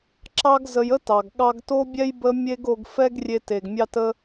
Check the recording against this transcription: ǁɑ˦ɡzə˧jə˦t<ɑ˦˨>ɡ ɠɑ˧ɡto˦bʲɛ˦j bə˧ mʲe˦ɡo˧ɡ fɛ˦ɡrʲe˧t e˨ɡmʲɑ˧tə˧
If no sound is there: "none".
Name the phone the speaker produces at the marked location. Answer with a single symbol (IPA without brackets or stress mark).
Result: ɑ˨